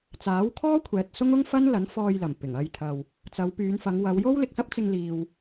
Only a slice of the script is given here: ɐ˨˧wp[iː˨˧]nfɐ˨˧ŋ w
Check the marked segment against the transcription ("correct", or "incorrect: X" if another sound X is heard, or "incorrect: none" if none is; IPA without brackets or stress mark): incorrect: yː˨˧